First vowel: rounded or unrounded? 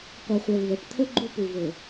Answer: unrounded